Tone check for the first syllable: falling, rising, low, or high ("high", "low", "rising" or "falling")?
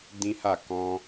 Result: high